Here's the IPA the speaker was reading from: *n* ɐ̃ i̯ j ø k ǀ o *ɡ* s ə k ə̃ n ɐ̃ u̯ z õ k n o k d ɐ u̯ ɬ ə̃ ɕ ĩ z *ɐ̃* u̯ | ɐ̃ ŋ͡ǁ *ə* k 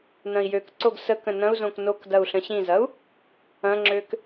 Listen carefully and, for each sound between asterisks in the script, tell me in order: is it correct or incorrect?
correct, correct, incorrect: ɐ, incorrect: ø

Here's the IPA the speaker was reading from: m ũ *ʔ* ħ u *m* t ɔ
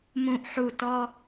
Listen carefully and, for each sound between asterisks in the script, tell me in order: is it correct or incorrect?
correct, incorrect: none

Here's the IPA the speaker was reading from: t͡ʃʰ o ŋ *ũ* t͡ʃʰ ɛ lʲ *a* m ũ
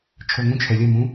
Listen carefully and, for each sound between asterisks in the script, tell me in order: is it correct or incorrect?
correct, incorrect: ʌ

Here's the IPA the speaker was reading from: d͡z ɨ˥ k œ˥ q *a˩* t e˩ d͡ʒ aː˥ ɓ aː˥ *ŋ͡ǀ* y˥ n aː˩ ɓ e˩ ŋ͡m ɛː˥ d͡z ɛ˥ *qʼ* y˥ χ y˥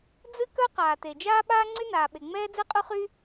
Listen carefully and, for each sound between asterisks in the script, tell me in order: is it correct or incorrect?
incorrect: aː˩, correct, correct

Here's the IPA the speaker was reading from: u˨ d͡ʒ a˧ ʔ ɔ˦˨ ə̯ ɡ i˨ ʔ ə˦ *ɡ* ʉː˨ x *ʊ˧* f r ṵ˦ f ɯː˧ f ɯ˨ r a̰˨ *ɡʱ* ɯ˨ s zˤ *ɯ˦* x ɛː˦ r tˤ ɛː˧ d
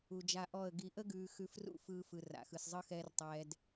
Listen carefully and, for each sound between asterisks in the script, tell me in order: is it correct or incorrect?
correct, incorrect: ʉ˧, incorrect: x, correct

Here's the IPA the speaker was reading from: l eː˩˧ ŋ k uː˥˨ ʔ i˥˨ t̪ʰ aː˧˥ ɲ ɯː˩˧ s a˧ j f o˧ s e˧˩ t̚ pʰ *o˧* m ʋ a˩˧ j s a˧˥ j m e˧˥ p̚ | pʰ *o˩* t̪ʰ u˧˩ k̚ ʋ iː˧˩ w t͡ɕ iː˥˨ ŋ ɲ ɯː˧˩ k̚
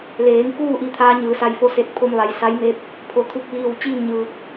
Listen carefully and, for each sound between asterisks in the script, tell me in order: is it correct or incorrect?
correct, correct

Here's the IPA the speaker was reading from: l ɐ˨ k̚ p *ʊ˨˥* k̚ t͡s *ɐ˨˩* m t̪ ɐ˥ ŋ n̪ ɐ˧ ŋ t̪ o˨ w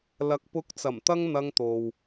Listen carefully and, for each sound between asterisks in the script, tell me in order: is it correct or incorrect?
correct, correct

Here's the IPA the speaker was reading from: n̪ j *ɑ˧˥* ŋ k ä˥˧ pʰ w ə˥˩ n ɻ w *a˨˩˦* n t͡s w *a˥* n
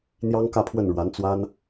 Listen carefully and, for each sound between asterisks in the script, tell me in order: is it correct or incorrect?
incorrect: ɑ˥, incorrect: a˧˥, correct

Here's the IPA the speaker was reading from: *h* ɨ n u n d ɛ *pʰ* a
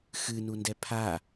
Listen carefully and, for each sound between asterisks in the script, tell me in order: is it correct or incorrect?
incorrect: x, correct

